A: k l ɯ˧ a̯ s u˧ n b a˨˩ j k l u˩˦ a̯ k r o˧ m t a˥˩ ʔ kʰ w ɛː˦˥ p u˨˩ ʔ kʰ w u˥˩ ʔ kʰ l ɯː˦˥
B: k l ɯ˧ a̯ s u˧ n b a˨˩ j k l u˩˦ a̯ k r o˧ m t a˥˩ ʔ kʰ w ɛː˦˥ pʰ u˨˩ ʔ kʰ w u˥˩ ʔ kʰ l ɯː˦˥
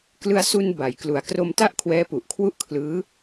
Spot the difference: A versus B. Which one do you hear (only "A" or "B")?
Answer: A